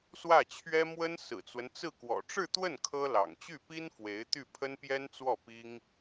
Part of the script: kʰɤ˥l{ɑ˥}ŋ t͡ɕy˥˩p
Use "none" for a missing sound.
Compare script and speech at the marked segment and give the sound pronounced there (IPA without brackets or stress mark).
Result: ɑ̰˨˩